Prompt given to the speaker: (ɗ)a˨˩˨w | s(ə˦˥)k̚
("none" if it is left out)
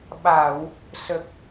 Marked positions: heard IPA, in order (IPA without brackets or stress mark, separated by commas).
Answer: ɓ, ə˨˩